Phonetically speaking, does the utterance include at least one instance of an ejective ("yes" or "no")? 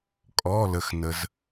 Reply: yes